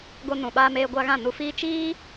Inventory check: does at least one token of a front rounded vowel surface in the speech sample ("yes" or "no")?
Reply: no